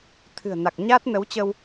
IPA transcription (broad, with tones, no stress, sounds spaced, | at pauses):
t̪ʰ ɨ̤˨˩ ə̯ n a˨˩ k̚ ɲ aː˦˥ t̚ n ə˨˦ w t͡ɕ ə˧ w